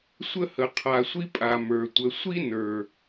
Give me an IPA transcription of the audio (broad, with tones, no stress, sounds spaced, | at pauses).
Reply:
sʷ ə˦ h ə˨ qʰ a˨ sʷ i˦ pʼ a˨ m ə˞˨ tʷ ə˨ sʷ i˦ n ə˞˨